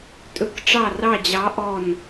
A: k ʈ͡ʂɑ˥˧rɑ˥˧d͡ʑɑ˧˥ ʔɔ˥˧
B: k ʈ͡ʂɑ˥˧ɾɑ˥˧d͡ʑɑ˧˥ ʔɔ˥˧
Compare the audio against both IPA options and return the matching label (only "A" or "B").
A